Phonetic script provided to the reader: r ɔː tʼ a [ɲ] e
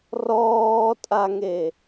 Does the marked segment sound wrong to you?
yes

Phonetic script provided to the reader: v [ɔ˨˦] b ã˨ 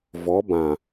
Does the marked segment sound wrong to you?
no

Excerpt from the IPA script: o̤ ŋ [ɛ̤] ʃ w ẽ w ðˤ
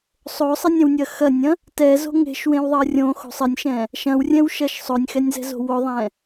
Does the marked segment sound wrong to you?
yes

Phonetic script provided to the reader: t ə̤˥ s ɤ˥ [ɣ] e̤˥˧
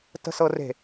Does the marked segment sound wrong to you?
yes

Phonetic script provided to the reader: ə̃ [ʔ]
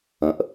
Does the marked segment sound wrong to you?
no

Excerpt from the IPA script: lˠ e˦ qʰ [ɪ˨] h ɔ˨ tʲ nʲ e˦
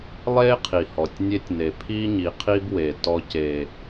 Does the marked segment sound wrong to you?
yes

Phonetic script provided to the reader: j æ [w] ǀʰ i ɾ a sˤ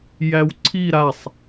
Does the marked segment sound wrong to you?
no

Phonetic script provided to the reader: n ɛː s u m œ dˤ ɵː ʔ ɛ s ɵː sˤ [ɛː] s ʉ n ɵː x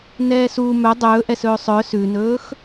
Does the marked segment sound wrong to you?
yes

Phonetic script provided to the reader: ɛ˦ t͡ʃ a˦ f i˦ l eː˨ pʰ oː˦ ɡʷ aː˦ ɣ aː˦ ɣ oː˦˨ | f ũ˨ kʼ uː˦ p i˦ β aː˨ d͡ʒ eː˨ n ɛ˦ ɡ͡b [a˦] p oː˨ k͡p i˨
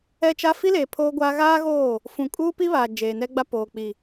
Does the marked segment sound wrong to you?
no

